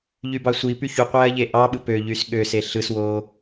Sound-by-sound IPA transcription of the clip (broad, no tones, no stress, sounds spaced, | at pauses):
ʎ y b ɑ sʷ i p y ç u qʷ æ ɐ̯ ʎ e ʔ ɑ ɓ ɯ p ø ʎ y s ɠ ø s e ɬ ɯ s w o